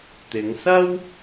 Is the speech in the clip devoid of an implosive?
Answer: yes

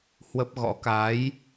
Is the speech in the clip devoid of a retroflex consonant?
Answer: yes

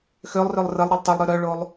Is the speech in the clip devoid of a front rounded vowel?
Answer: no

